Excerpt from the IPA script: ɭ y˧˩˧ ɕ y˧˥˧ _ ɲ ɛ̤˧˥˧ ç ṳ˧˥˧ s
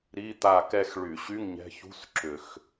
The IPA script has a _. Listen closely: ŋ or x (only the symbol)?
ŋ